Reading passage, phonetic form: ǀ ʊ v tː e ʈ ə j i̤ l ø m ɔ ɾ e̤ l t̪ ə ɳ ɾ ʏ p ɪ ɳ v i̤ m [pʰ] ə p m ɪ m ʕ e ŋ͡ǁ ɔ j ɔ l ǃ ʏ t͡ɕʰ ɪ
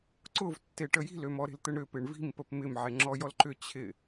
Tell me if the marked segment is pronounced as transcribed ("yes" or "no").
no